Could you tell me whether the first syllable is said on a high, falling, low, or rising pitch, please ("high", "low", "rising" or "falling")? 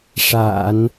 low